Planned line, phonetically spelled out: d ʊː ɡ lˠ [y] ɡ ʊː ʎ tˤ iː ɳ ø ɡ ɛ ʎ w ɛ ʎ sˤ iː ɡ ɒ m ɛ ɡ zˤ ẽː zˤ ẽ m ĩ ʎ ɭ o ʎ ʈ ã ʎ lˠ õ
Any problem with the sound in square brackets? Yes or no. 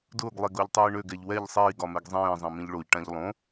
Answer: yes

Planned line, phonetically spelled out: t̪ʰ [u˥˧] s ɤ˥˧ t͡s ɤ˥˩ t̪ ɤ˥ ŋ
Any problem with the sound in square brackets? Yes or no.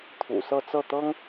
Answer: yes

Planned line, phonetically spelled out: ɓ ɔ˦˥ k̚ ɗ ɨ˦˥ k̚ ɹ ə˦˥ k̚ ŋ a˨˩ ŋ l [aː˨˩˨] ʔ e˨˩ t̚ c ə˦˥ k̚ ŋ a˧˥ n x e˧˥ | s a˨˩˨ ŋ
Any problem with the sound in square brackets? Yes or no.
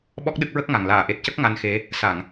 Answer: no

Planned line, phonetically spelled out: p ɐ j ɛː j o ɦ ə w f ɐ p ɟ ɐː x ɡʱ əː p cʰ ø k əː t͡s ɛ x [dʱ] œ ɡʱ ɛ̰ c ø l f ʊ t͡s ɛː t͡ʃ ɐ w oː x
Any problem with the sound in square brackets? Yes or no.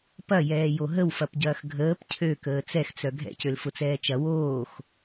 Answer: yes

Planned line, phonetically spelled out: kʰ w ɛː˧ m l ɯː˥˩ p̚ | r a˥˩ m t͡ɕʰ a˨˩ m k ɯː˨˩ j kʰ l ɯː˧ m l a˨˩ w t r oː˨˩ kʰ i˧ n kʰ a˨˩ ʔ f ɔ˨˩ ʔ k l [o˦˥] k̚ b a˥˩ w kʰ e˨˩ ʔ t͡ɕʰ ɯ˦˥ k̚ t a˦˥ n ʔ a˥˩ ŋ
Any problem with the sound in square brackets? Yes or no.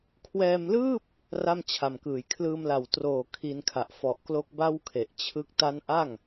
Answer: no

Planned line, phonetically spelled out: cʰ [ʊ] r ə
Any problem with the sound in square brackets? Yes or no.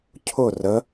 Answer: no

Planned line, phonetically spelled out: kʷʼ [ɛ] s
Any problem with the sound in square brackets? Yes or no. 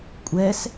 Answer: no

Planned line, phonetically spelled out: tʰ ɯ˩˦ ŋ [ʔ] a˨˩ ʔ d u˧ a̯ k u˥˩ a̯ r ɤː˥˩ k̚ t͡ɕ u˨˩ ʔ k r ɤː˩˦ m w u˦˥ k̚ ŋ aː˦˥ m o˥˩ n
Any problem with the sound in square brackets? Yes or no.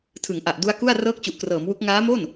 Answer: no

